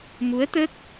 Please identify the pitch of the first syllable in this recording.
rising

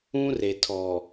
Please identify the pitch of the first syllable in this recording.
high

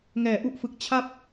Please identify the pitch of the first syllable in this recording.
low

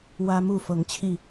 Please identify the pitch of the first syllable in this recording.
high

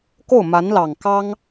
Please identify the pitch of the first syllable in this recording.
falling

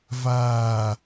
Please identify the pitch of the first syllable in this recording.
low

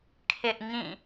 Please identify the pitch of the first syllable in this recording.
high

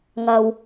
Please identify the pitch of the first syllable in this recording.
low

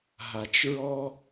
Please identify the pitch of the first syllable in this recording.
low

